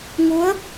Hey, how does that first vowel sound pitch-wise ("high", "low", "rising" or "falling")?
rising